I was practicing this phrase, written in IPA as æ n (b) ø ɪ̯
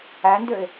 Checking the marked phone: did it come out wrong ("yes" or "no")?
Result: yes